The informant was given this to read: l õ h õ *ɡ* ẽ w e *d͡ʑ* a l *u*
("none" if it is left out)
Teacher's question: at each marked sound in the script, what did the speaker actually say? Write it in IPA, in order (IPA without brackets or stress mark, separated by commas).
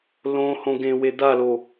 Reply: ɡ, d̪, o